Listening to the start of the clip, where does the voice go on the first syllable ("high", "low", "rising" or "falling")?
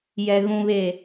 low